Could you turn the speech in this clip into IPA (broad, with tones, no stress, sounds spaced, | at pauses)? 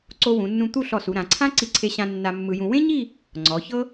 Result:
ǀ o˧ w ũ˩˧ nː ũ˧ t̪ u˥˧ ɬ ɔ˧˩ s u˩˧ ɾ ã˩˧ ǀʰ ã˥ ǀ i˧ ǀʰ e˧ ɕ ã˧ nː a˧ mː ɯ˧ j ũ˧ w ẽ˥ ɲ i˥˧ | ŋ͡ǀ ɔ˩˧ ç ɤ˥